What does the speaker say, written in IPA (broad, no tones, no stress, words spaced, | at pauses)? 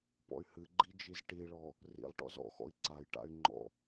pɔ̰y̯hɨɡ͡ǃi d͡ʒizʈiɭɔ | rḭlˠʈɔ̰z ɔ̰xɔ̰i̯ ǀajʈa̰y̯ ŋ͡ǃɔ̰